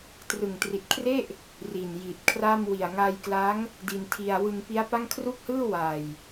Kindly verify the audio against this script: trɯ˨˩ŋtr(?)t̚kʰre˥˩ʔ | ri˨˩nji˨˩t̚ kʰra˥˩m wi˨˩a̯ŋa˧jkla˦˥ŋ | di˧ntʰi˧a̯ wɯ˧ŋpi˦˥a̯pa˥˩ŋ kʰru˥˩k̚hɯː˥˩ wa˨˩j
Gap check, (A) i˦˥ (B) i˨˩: B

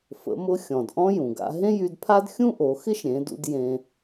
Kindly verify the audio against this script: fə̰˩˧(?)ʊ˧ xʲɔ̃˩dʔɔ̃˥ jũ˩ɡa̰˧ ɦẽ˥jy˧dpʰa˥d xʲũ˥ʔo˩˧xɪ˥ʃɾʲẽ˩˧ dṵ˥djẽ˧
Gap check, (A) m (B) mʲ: A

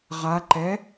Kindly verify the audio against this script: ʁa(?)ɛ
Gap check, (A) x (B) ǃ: B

